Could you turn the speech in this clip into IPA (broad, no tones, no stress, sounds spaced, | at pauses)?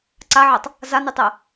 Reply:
ǀ a ʕ a tˤ | z a n y tˤ ɛ